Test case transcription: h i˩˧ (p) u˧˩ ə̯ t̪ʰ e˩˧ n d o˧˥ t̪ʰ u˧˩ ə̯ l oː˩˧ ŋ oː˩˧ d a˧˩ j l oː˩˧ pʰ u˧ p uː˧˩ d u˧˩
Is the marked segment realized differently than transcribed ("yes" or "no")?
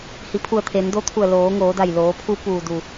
yes